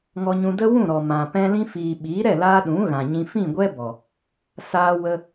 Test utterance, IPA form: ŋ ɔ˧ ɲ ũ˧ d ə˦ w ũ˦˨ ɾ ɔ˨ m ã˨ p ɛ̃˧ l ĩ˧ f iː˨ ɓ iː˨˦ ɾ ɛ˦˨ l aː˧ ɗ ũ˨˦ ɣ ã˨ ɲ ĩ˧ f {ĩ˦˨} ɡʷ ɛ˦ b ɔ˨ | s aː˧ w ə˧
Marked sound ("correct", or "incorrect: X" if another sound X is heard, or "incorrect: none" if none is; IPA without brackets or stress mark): correct